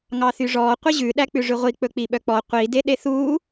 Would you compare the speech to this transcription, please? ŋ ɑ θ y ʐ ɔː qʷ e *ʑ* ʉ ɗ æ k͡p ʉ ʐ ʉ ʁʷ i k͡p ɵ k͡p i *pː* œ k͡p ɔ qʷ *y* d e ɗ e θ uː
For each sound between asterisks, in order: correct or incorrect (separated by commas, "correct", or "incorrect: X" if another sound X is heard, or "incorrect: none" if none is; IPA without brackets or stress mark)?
correct, incorrect: ɓ, incorrect: i